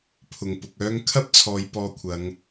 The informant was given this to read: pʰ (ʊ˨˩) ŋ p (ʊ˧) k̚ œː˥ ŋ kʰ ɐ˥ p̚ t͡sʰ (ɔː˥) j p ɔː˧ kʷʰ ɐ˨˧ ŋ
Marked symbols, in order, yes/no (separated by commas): yes, no, no